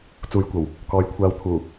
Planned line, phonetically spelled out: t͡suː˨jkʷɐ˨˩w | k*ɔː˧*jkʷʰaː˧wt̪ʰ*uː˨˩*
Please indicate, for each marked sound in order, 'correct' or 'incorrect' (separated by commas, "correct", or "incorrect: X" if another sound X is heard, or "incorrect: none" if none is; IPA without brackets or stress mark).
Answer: incorrect: ɔː˨˧, correct